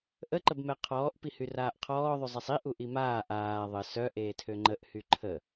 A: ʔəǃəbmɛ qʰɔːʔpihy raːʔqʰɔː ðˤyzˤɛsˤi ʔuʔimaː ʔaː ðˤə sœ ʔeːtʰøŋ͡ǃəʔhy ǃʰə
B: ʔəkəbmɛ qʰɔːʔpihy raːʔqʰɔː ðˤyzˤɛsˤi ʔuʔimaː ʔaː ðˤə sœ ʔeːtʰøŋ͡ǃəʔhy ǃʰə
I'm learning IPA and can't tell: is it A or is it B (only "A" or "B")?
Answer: A